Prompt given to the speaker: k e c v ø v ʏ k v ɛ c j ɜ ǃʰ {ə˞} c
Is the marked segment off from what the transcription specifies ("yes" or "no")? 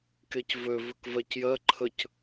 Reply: yes